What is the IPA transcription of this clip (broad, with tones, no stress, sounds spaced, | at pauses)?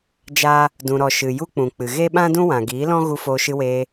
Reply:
d͡ʒ a˦ | d ũ˨ ɾ ɔ˨ ʃ ɨ˨ j u˦ k͡p ũ˨ k͡p ɨ˨ ɣ e˦ ɓ ã˦ d ũ˦ w ã˨ ɡ iː˨˦ l ɔ̃˦ ɣ u˧ f oː˧ ʃ ɨ˧ w eː˧